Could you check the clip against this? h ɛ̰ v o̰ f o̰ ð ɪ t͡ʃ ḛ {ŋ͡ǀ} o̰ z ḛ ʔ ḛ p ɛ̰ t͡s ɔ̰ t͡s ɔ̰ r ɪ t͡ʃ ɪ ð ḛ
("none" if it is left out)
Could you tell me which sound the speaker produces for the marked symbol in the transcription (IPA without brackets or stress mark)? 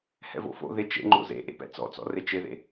ŋ͡ǃ